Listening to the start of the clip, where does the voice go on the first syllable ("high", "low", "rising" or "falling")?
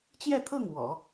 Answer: falling